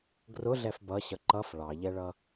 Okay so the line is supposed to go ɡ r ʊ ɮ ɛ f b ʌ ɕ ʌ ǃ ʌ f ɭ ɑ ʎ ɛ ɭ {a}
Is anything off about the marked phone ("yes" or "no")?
yes